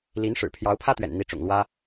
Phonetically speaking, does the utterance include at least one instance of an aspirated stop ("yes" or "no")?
yes